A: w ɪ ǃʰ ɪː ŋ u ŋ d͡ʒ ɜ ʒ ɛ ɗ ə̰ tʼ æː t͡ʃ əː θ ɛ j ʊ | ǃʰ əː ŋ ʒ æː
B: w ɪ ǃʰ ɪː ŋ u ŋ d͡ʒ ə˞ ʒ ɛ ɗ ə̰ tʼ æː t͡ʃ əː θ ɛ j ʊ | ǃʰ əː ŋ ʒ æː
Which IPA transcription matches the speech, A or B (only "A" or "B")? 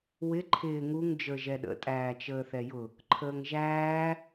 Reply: B